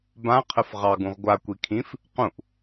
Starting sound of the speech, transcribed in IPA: b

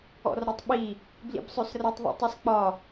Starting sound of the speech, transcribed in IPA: ɔ̰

